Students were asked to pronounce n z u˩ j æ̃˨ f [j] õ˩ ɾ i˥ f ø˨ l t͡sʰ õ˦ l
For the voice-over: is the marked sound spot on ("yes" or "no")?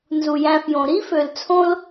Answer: yes